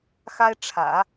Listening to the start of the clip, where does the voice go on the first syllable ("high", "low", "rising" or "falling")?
high